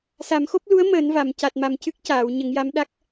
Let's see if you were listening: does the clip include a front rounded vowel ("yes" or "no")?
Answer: no